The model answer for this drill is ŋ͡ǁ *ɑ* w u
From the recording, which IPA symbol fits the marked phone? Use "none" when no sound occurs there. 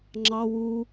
ɑ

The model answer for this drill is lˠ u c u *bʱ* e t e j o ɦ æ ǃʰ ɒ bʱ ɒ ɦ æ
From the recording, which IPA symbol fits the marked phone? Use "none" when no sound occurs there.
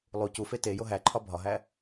f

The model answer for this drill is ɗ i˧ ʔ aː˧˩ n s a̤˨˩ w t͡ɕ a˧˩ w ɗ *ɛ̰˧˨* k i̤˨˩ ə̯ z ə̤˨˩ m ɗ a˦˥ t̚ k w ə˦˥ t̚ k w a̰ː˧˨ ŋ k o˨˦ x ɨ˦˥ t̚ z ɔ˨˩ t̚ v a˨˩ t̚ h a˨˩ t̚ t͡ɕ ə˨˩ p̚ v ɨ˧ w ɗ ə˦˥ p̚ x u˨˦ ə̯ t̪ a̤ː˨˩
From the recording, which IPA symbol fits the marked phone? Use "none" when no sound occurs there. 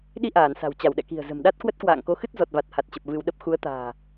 ɛ̰˧˨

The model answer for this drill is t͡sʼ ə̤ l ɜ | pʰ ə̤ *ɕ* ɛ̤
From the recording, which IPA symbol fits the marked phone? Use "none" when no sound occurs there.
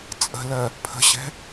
ɕ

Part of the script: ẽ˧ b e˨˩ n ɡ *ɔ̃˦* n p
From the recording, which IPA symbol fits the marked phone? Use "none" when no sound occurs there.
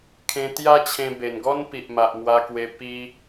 ɔ˦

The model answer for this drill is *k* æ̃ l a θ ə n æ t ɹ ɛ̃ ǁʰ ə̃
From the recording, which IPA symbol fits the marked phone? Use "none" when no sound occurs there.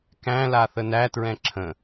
k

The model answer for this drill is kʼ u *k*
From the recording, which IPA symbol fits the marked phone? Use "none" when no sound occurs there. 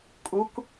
k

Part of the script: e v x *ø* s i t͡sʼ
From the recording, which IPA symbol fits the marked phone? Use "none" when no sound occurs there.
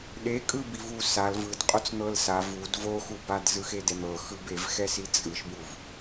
ɛ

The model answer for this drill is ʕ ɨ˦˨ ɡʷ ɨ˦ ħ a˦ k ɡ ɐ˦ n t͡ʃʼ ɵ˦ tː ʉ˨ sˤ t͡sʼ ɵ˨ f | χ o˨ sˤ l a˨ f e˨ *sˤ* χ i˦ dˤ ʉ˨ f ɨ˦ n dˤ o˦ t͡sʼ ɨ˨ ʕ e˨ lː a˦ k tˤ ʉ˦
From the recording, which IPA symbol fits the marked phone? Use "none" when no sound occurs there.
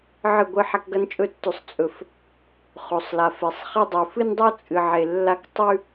sˤ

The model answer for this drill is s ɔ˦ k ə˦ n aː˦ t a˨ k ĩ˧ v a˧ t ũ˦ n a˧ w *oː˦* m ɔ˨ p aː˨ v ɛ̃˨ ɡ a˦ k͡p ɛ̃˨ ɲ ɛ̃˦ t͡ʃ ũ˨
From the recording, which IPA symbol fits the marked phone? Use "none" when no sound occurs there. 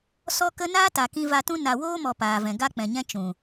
oː˦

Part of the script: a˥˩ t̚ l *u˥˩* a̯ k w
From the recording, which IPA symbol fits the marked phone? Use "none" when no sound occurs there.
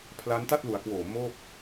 u˩˦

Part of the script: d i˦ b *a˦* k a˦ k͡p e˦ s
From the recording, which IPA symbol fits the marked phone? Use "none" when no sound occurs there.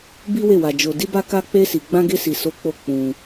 a˦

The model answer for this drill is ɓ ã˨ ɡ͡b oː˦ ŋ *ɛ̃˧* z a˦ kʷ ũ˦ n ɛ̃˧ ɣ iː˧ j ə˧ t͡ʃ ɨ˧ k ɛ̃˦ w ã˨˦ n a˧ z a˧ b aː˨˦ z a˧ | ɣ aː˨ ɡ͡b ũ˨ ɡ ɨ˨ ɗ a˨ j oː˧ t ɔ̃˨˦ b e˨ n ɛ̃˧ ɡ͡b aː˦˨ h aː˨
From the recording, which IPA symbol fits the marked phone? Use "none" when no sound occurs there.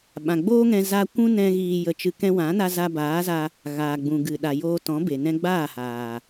ɛ̃˧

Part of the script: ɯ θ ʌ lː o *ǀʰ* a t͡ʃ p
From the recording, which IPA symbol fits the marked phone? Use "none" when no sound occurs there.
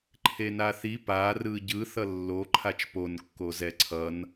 ǃʰ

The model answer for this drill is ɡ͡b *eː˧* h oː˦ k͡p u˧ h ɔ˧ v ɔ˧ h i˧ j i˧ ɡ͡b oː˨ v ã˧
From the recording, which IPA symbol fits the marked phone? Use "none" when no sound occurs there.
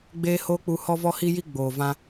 eː˦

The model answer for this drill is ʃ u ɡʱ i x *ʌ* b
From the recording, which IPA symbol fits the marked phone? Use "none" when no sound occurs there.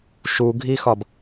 ɒ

